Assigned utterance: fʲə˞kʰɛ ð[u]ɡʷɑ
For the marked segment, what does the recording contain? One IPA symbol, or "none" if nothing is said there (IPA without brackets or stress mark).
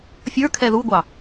u